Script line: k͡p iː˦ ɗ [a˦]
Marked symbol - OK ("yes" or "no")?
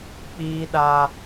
yes